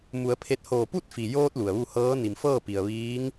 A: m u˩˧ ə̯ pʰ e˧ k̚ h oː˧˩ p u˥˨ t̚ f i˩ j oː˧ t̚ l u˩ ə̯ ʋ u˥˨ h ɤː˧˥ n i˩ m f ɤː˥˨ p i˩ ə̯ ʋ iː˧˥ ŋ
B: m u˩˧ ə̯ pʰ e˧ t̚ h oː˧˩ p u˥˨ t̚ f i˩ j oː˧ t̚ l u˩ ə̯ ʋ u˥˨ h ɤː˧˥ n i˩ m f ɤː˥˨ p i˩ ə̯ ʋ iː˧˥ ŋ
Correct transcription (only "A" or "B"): B